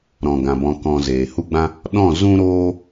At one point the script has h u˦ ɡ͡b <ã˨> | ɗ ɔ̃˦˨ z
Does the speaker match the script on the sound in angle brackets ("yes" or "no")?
no